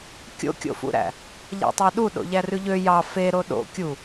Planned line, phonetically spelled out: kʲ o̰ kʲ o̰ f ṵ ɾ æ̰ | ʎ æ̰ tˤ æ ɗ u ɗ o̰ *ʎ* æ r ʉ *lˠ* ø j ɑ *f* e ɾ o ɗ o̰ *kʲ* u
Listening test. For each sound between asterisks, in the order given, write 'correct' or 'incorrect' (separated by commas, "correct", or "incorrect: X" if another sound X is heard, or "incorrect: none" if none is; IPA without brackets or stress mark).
correct, incorrect: ʎ, correct, correct